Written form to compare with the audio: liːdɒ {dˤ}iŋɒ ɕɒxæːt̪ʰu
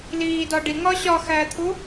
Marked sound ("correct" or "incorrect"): incorrect